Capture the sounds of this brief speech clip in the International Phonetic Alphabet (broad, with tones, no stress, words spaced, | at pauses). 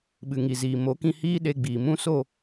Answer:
ɓɨ˨ŋi˨ziː˨ mo˨˦kĩ˧hiː˦ ɗe˧ɡ͡biː˨mũ˦ so˦˨